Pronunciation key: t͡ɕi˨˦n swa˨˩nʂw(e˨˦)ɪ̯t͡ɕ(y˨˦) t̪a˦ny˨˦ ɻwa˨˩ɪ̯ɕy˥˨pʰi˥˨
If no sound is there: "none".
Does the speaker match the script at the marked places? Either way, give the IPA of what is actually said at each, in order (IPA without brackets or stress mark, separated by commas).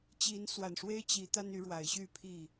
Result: e˦, i˨˦